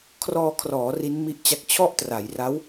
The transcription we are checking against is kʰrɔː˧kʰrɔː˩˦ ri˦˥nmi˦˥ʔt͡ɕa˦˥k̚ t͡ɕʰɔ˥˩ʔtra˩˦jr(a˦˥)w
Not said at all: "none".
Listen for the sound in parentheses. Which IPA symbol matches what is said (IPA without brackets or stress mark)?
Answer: a˦˥